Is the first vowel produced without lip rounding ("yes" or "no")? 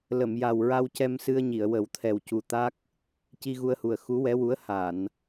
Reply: yes